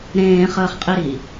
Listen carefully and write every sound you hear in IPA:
ɾ ẽː χ əː χ qʼ i ɾ i

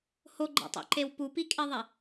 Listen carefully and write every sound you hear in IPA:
h o ɡ͡ǃ ɛ̰ tˤ ḛ ǃ e w p u p i kʼ e ðˤ ɛ

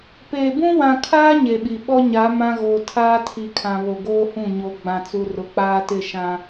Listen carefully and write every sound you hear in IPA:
p eː˨ b ũ˦ w ã˨ kʰ aː˦ ɲ e˨ ɓ i˨ ɓ ɔ˦ ɲ a˨˦ m ã˦ ɣ o˨ tʰ aː˦ tʰ i˨ kʰ ã˨ β o˨ ɡ oː˦ h ũ˦˨ ɲ o˨ ɡ͡b ã˨ t͡s u˨ r ʊ˨ k͡p aː˦ t ɪ˦˨ ʃ ã˦

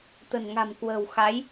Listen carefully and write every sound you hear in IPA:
t̪ ə̤˨˩ n ŋ a̤˨˩ m k w ə̤ː˨˩ w x a˨˦ j

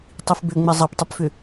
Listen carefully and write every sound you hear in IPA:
tˤ i f b ʏ ŋ͡m ɛ zˤ ɐ p tˤ ʏ p f ʏ

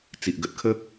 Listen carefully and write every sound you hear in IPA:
t͡s i˨ ʔ ɡ ə˦ t̚ kʰ ə˦

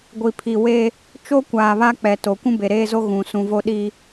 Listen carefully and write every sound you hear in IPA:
ɡʷ i˨ pʰ i˨ w e˦ | t͡ʃ o˦ kʷ aː˨ β a˦ k͡p ɛ˨ t o˨ kʷ ũ˦ b e˨ ɾ eː˦ z o˦ ɣ ũ˨ s ũ˨ v o˦ ɗ i˦

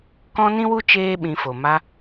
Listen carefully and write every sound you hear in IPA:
k ɔ̃˦ n ĩ˦ w u˦ t͡ʃ eː˦ ɓ ĩ˧ f o˨ m a˧

